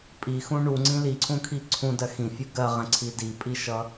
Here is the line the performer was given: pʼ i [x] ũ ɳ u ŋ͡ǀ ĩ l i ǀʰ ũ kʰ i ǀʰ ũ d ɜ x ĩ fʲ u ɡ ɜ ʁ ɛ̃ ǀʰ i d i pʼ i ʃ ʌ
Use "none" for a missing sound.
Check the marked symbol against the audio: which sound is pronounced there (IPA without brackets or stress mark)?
x